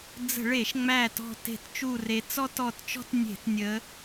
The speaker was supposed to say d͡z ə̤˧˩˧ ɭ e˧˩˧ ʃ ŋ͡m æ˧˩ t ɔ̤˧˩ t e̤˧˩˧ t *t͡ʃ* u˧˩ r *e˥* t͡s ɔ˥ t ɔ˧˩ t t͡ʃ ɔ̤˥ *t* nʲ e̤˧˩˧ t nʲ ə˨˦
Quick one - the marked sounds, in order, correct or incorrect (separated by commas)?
correct, incorrect, correct